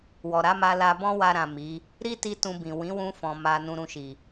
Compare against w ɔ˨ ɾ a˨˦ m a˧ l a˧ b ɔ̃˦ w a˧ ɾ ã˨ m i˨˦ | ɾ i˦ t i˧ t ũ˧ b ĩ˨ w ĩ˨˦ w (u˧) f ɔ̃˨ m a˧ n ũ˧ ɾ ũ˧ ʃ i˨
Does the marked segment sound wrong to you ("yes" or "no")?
yes